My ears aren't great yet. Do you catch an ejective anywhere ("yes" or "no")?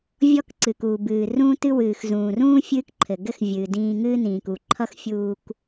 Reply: no